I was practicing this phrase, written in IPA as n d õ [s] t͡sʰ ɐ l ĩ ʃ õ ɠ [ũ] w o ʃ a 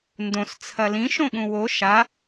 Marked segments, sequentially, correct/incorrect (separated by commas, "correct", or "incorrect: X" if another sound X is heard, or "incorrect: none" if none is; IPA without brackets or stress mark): correct, correct